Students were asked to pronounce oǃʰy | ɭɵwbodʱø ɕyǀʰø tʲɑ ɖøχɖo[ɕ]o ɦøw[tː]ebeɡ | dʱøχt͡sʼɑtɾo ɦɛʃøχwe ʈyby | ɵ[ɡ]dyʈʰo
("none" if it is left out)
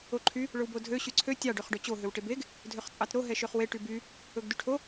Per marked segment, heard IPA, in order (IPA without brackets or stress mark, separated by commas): t͡ɕ, ʈ, ɡ